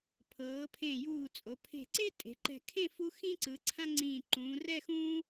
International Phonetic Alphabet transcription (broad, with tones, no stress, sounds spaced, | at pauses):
pʰ ɤː˩˧ pʰ ẽ˧˩ j uː˧˩ t͡sʼ o˩˧ pʰ e̤˧˩ ǀ e˥ tʼ e̤˩˧ ǃ ɛ̤˧˩ kʰ ẽ˥˧ f u˧ x ĩ˥ ǀ ɯ˩˧ ǀʰ ã˥ ŋ͡ǀ ĩː˧˩ ǃ ũː˩˧ r ɛ˥˧ x ũː˥